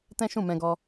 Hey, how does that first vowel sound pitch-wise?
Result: high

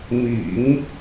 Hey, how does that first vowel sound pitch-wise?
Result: low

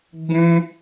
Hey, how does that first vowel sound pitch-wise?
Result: high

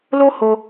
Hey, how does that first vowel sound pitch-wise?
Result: high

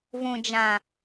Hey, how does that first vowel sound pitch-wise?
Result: low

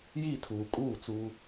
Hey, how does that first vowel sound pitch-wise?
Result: falling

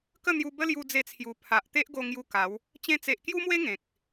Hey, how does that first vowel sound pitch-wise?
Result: falling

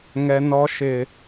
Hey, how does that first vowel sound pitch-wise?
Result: high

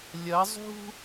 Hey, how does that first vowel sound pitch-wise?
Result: rising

